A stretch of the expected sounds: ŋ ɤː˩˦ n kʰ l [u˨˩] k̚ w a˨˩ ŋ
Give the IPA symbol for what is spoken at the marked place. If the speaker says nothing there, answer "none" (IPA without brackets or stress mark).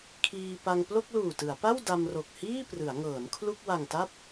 u˥˩